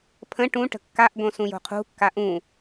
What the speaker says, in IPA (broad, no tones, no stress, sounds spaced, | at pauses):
pʰ ə̃ ʈ ũ ʈ ə̤ kː a ʔ ɡ õ s ũ j o̤ qʰ ṳ kː a ʔ ũ